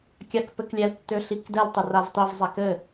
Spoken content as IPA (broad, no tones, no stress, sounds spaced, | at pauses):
kʲ a k p ɘ k lʲ ɛ l tː ø ɬ i k d ɛ l tˤ ɘ r a v tˤ i v zˤ a k ɘ